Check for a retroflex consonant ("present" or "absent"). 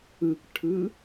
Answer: present